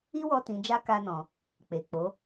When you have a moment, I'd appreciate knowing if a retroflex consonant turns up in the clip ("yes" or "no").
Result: no